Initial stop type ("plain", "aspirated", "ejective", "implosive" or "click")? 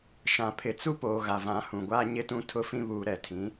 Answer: aspirated